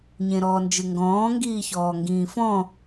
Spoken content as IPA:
ɲ ẽ ɾ ɔː n d͡ʒ ɯ ŋ ɡ ɔ̃ː ŋ ɡ iː ç ɔː ŋ ɡ ĩː f ɔ̃

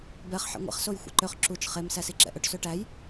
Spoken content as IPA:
b ɛ χ ħ ɛ̰ ŋʷ ɛ̰ χ s o j xʷ ɛ̰ ǃ ø χ ǁ u t͡ʃ χ e m s æ s i ǁ ɛ̰ ʔ ɵ ʈ s ø ʈ æ j

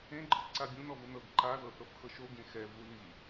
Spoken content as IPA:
ẽ ɡ͡ǃ ɯ ǀ a bʲ ũ n ɔ v ɯ n ɤ ɡ ǃ a ð ɤ θ ɤ f x ɤ ʃ o ɡ ẽ x ɛ v u l i

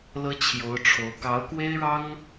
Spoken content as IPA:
l ɤ˥ t͡ɕʰ j o˧˥ ʊ̯ ʈ͡ʂʰ o˧˥ ʊ̯ k ɑ˧˥ ʊ̯ k w e˥ ɪ̯ ɻ ɑ˥ ŋ

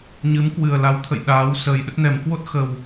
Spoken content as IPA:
ɲ ɨ˨˦ m k w ɨ˨˩ ə̯ l a˨˦ w t̪ʰ ə̰˧˨ j ɗ aː˨˦ w s əː˨˩ j ɗ ə˦˥ t̚ n ɛ˨˩ m k w o˦˥ t̚ x ə˨˩ w

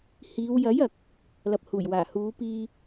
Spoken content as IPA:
h iː˨˧ w j ɐ˨˥ j ɐ˧ k̚ | l ɐ˨ p̚ h uː˨˩ j w aː˨˩ h uː˨˧ p iː˧

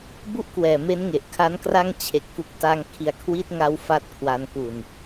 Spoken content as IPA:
b u˥˩ ʔ k w ɛː˨˩ m e˦˥ n ŋ e˨˩ ʔ kʰ a˦˥ n k r a˥˩ ŋ t͡ɕʰ e˨˩ k̚ f u˨˩ k̚ t a˧ ŋ kʰ i˨˩ a̯ kʰ w i˦˥ t̚ ŋ a˧ w f a˥˩ t̚ kʰ w a˧ n k u˨˩ n

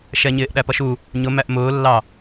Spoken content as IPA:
ʃ ɛ ɲ ɪː ʔ ɗ æ p ʌ ʃ u | ɲ ʊ m æ ʔ m ʊː lː ɑ

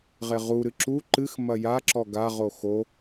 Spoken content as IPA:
ʁ e ʁ u ɾ ɨ ǁ u ǃ ɨ x m ɐ j a ǁ ɔ ɡ a ʁ o x o

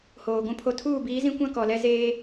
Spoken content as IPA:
h oː˨ ɡʷ ũ˦ pʰ o˦ tʰ uː˦˨ b iː˨˦ z ĩ˦ kʷ ã˦ k ɔ˨ l ɛ˦ z eː˦

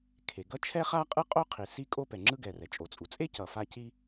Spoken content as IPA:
kʰ e˩ ɡ ʌ˥ t͡ʃʰ ɛ˥ χ a˥ qʼ ɯ˥ qʼ o˥ qʰ i˩ s i˥ kʼ o˥ p ɛ˩ ŋ͡ǁ ɯ˥ ɡ ɛ˩ r ɛ˩ t͡ʃʼ o˩ t͡sʼ u˩ t͡sʼ e˥ c ʌ˩ f a˥ c i˥

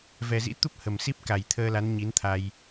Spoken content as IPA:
v ɛ˨˩ z ḭ˧˥ t̪ u˦˥ p̚ h ə˨˩ m s i˦˥ p̚ k a˨˩ j t̪ʰ əː˧ l a˨˦ n ɲ i˨˦ n t̪ʰ a˧ j

